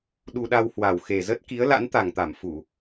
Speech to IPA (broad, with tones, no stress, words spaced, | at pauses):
ɗu˧ɗa˧whwa˨˩w xe˨˩zə˦˥t̚ki˨˦ə̯ la̰˧˥nt̪a˨˩ŋt̪a˧˩m fu˧˩˨